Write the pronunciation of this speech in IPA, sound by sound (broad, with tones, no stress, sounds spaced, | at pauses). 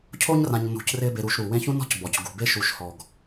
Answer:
cʰ o˥ ɲ r ã˨ ɲ n ṳ˨ c r ɪː˦ b e˨ ɾ u˨ ʃ ɾ u˩ w ẽː˦ ç ũ˥ n ɔ̤˥ c b ɔ˩ c ɡ ṳ˩ b e˥ ʃ u˨ ʃ h ɔ˩ ɡ